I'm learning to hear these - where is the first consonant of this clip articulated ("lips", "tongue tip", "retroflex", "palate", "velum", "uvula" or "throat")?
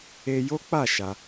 palate